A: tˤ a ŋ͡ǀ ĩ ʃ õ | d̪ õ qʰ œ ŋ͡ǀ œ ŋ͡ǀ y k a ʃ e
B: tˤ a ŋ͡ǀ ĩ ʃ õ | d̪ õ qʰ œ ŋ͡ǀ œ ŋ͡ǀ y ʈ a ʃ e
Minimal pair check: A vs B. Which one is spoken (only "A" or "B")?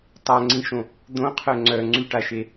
B